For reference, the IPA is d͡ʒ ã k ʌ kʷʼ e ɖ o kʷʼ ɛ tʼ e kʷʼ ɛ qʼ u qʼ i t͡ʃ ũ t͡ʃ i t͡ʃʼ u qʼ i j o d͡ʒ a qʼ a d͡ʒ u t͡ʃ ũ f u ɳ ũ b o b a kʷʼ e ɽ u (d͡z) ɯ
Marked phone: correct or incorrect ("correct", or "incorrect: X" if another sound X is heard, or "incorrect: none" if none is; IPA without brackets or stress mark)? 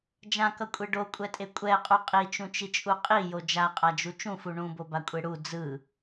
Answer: correct